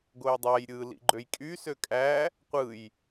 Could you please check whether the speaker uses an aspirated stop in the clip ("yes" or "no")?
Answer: no